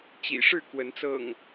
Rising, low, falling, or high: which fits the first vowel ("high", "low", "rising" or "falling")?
low